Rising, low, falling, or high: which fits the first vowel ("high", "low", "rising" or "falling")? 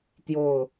falling